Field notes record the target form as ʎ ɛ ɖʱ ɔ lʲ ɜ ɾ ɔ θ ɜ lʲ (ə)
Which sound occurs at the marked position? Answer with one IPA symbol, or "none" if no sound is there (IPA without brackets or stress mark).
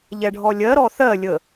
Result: ə